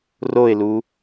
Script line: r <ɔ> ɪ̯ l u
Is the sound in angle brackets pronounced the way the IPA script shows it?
no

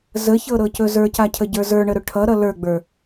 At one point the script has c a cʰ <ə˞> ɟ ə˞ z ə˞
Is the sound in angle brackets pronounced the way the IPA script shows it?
no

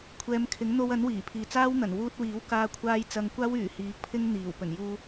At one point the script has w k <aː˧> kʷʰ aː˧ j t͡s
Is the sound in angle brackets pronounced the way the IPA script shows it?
yes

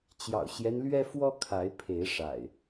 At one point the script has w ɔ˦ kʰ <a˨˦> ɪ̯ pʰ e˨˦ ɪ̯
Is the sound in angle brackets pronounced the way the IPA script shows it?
yes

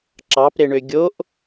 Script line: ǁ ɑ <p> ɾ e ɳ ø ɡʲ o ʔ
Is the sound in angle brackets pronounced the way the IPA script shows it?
yes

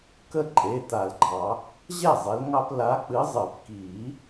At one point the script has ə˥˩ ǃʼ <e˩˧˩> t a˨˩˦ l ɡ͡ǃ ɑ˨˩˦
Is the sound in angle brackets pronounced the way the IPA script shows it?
yes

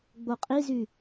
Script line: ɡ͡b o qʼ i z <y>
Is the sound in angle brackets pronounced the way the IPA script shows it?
yes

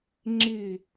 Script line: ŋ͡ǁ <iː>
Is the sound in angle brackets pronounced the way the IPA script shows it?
no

